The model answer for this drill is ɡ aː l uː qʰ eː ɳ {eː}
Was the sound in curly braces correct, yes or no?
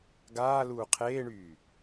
no